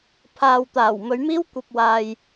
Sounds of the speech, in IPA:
pʰ aː˨ w t̪ aː˨˩ w m ɵ˨˧ ɥ m iː˥ w kʷ ɐ˧ p̚ w aː˨ j

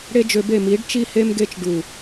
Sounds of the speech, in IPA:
ɽ e˦ d͡ʒ ø˧ b e˦˨ m i˨˦ ɖ t͡ʃ i˦ h e˦ m ɡ e˦ t͡ʃ ɖ u˦˨

